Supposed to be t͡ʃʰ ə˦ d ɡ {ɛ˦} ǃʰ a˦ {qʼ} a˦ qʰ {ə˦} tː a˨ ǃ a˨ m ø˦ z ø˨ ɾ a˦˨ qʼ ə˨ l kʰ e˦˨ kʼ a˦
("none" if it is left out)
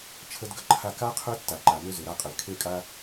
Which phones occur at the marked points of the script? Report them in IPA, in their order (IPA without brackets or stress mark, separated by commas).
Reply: ə˦, k, ø˦